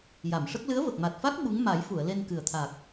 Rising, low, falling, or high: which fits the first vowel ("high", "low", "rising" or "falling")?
low